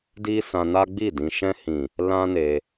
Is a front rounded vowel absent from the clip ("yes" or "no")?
yes